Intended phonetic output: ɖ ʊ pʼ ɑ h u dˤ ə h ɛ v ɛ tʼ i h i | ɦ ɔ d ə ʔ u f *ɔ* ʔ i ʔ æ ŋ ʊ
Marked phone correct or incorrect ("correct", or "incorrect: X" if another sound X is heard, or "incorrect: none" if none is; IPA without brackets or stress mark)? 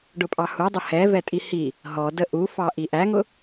incorrect: ɑ